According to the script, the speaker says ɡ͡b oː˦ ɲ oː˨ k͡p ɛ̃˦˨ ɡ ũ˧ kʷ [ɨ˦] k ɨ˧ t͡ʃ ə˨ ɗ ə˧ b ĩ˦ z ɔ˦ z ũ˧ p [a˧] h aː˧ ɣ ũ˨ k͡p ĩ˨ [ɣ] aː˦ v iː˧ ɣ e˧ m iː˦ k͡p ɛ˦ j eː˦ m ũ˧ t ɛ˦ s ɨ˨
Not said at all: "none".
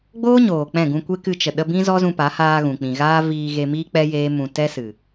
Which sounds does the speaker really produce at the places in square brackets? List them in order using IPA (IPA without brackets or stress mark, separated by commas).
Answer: e˦, a˨˦, ɣ